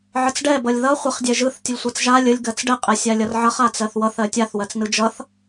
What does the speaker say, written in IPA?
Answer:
ʕ ə t͡s ɖ ɛ b ʌ lʲ ð ʌ χʷ ə χ dʲ ɛ ʒ ɯ θ tʲ ʌ lʲ sʷ ɛ t͡s ʒ a lʲ ə lʲ ɡ ɜ t͡s ɖ ɛ qʼ ɛ sʲ a lʲ ʌ r ʕ ʌ χ a t͡s ɜ θ w ʌ θ ɜ tʲ a θ w ɜ t͡s n ɯ d͡ʒ ʌ θ

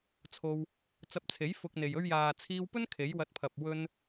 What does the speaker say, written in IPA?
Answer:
t͡sʰ o˧ w | t͡s ɐ˧ p̚ t͡sʰ e˨˥ j f ʊ˧ k̚ n̪ e˨ j ɵ˧ ɥ j aː˨ t͡sʰ iː˧ w p ɵ˥ n kʰ e˨˥ j w ɐ˧ t̚ pʰ ɐ˨ p̚ w ɵ˧ n

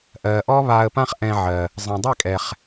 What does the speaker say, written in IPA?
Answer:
ʔ ɜː˩ ʔ ɔ˥ β aː˧ ə̯ p ã˥ χ ʔ ɛ̃˧ ʕ ɜ˩ | zˤ ə̃ː˩ dˤ ɛ˥˩ kʼ ɛ˩ χ

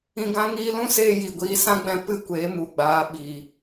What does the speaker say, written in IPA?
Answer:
ĩ˧ ɡ ã˦ ŋ iː˧ l ũ˦ s eː˧ j i˧ ɡʷ iː˦ s ã˦ ɡ͡b ɛ̃˧ p ɨ˦ kʷ eː˨˦ m u˨ ɡ͡b aː˨˦ ɓ iː˨

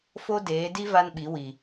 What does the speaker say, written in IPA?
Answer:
f o˦ d eː˨˦ d i˦ v a˦ n ɓ i˨˦ w i˨

